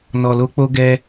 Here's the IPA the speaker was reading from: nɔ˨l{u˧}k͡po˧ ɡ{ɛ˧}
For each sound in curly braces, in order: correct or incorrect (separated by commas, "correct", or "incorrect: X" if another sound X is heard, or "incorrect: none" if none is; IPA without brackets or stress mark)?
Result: incorrect: o˧, correct